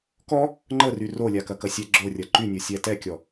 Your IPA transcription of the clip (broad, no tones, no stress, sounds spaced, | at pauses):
k ɔ | ŋ͡ǃ ə r y r o lʲ a k ɐ k ɐ sʲ ɛ ɡ͡ǁ o rʲ ɐ ǃ y nʲ o sʲ ɛ t ɛ kʲ ɔ